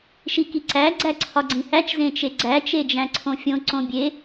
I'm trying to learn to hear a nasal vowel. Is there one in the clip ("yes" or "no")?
yes